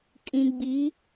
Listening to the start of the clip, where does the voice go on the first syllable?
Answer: low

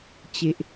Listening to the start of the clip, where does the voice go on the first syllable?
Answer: low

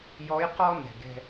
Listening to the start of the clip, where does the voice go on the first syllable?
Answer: rising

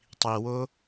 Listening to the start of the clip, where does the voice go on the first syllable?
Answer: low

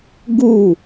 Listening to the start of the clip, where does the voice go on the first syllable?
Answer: falling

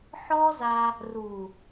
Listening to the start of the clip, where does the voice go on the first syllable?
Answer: high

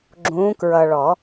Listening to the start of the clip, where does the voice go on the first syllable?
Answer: rising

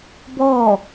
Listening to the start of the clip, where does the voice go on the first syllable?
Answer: falling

